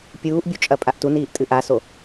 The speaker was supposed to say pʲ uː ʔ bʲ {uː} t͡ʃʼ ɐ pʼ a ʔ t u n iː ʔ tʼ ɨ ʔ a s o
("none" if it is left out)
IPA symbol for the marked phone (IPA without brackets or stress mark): u